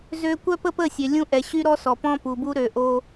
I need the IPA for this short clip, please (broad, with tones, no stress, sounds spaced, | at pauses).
z ø˦ kʷ œ˦ p ə˦ p ə˦˨ sʲ ø˨ lʲ ũ˦ ʔ ɛ˨ ɕ y˦ ɾ ɔ˦ s ɔ˨ p ɔ̃˦ p u˨ b u˦ ɾ ø˨ ʔ o˦